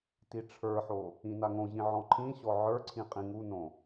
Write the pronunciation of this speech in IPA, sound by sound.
tiʈ͡ʂʰə˞ħo | ĩnaŋõʑĩ ʕɔ̃ǃʰĩɕɔ ʕə˞ǀʰĩ qʼĩŋunõ

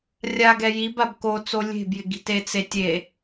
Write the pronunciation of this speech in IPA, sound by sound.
rʲa ɡɛjibab kot͡so lʲe̤bjɪ ɡi̤tet͡setʲe

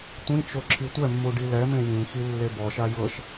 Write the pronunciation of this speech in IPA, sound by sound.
tʷĩt͡ʃo ǁʰitʷɛmːu ɖilɛmẽ jĩxi lːebɔʃa jɤʃ

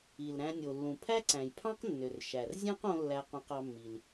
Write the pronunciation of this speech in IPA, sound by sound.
i˩lɾæ̃˧nʲo˩lːũ˩ pʰæ˥ǀæ̃˩jpʰɑ̃˥q nːø˩r ʃæ˩r zʲæ̃˥qõ˧ lːæ˧qõ˧qɑ˧mːi˩l

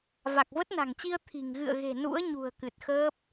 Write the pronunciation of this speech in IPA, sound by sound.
va˨˩k̚və˦˥t̚na̤˨˩ŋt͡ɕi˧ə̯ t̪ʰi̤˨˩ŋ ɣɨ̰˧˨ə̯ɣe̤˨˩ nṵ˧˥ə̯ɲṳ˨˩ə̯ kɨ˨˩t̚xəː˦˥p̚

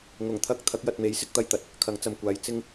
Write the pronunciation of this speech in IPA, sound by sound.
ŋʊ˨˩ŋ t̪ʰɐ˥k̚ t̪ʰɐ˨˥k̚jɐ˨t̚me˨˥jsɪ˥k̚ t̪ɐ˧jt̪ɐ˧t̚ | kʰɐ˨˧ŋt͡sɐ˨mkʷaː˨˧j t͡sɪ˥ŋ

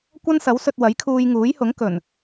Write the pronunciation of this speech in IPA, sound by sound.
kʷɐ˥nsɐ˨˥wsɵ˧t̚ wɐ˨˥jkʰuː˧jŋuː˨˥jhʊ˨˥ŋ kɵ˨˩n

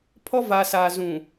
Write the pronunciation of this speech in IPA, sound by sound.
pʰɔ˦ va˨sa˨zũ˨

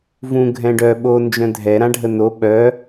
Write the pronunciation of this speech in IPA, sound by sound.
vũ ɡʱɛ̃ɖœ ɓo nd͡ʒœ̃dʱɛ ɾãɖʱəno ɓœ

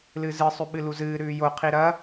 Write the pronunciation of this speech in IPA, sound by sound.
lɨzɨ sˤʉɓɨluzɨː ɾʉːjo qʰiɾɐ

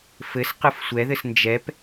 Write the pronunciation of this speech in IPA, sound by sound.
fɘs qɯfsʷɛðɘs nd͡ʒɛp

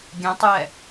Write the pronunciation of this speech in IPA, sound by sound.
ɡʲɛ̃tˤjɛ

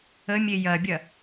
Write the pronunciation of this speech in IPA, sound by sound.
ə mʲejɐbʲɐ

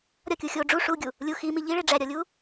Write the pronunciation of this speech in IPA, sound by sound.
ɾʲɒkʲu xʲo ɖ͡ʐu ʂuɡʲu | lʲu ximi ʎiɭe ɖ͡ʐæɾʲɒlʲu

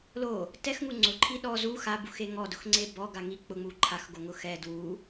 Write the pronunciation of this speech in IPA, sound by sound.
lo | tɛxŋu ŋ͡ǀʊǃʰi ɗɔ zu xabuxe ŋɔdʊxŋ͡ǀe bɔɡa ŋi k͡pʊŋ͡mu ǃʰaxɡoŋʊ xɛ dwu

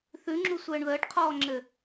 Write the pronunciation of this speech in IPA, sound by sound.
θʉŋ͡ǁu sʷɘːɳðəːʈqʰɔːŋ͡ǁɘ

